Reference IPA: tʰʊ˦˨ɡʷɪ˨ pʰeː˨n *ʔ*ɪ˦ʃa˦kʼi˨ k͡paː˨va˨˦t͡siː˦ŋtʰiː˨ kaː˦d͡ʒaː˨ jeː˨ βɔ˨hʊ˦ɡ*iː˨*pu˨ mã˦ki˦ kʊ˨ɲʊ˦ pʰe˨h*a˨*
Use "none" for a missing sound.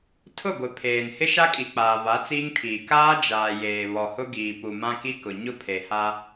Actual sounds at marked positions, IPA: h, iː˨, a˦

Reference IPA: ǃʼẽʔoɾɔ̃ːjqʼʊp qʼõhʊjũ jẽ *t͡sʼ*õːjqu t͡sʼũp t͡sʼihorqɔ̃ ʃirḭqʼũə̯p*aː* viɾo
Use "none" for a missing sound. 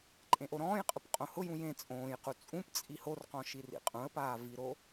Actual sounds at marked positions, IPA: t͡sʼ, aː

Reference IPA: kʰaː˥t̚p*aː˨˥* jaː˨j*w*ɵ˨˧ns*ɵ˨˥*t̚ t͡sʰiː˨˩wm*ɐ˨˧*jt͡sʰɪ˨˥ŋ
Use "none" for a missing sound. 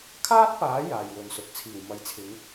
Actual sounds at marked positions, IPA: aː˨˥, w, ɵ˨, ɐ˨˧

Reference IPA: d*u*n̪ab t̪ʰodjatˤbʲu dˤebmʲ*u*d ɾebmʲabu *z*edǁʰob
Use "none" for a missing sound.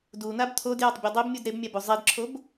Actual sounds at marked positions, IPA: u, u, zˤ

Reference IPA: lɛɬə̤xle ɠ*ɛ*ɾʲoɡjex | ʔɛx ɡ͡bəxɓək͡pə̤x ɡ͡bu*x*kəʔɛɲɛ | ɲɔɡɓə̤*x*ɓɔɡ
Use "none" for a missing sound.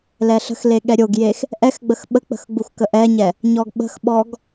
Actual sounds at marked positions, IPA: ɛ, x, x

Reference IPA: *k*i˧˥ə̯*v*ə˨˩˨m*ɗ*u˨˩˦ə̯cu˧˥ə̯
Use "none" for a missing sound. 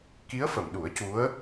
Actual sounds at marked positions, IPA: k, f, ɗ

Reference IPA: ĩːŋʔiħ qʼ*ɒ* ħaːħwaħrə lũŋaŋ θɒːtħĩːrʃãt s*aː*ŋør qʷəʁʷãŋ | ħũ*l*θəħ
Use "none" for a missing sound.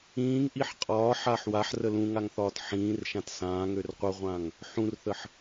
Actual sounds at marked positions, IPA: ɒː, ãː, r

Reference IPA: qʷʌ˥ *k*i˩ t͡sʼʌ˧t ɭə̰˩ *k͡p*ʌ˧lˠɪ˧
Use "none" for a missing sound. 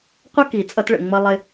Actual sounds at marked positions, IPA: k, ŋ͡m

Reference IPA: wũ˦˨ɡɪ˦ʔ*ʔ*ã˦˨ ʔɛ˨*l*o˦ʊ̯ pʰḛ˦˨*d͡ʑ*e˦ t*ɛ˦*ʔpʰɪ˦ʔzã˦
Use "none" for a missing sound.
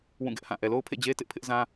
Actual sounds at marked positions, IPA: h, l, d͡ʑ, ɪ˦

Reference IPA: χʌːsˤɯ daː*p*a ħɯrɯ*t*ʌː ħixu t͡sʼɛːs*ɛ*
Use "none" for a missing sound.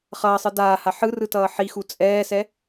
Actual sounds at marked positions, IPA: h, t, ɛ

